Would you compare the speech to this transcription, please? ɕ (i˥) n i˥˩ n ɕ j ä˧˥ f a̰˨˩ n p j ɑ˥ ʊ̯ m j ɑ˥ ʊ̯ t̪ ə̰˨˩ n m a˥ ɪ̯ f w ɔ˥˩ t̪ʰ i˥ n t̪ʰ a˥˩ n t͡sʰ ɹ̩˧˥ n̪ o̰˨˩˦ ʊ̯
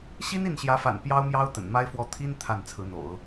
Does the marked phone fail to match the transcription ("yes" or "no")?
no